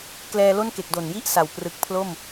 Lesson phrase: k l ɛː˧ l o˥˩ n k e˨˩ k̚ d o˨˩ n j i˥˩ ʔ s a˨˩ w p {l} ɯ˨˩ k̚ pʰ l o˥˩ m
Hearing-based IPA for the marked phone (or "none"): r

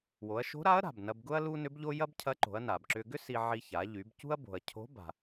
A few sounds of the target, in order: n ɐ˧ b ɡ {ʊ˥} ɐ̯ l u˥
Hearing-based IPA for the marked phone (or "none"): ʊ˥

